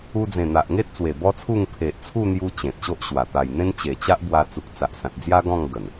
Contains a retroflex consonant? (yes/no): no